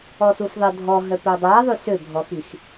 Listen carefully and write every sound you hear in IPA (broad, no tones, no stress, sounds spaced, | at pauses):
ɔ s u f ðˤ ə dʱ ɔ ɦ œ p œ dˤ a ðˤ y s ø bʱ ɔ x i x